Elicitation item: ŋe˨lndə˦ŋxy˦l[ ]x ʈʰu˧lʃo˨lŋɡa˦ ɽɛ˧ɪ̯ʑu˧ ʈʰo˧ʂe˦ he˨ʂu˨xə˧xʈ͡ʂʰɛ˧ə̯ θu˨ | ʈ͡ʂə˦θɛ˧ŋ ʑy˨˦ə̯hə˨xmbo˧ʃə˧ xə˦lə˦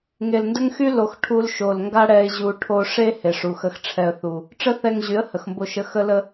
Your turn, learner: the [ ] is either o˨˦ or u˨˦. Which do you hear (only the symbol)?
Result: o˨˦